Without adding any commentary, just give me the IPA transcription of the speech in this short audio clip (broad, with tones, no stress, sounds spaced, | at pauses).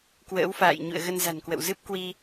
k w ə̰ː˧˥ w f a̰ː˧˨ j ɲ ṵ˧˨ ə̯ ɣ ə˧ n z a̤˨˩ n k w ə̰˧˨ w z ɨ˦˥ p̚ k w i˧